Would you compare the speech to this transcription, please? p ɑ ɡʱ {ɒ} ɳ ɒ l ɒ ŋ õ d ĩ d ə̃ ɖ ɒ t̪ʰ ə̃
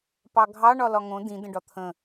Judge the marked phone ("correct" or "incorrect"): incorrect